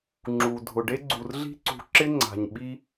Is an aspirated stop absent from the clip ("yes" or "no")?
yes